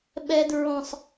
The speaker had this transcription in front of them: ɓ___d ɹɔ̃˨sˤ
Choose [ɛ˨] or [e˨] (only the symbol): ɛ˨